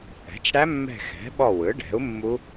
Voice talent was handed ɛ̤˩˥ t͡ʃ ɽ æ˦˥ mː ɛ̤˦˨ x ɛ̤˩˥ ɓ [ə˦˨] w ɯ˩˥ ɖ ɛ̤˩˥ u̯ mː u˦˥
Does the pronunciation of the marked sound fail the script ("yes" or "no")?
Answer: yes